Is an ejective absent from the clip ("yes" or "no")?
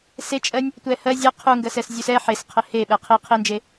no